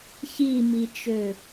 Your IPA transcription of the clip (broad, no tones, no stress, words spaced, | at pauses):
çimit͡ʃø